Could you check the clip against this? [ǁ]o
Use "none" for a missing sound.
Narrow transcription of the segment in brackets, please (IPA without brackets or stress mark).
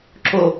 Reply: ǁ